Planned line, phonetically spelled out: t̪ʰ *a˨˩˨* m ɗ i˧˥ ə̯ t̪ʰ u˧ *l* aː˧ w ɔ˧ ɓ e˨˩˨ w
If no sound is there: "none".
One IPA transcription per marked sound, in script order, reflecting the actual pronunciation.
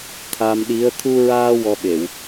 a˧, ɹ

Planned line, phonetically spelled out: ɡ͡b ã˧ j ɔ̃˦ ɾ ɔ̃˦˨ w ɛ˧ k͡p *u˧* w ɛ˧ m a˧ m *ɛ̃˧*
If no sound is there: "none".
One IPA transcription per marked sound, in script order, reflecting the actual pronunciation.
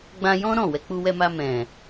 u˧, ɛ̃˨

